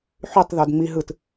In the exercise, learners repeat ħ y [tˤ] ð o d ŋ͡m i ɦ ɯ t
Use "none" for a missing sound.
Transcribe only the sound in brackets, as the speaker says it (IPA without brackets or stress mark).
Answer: tˤ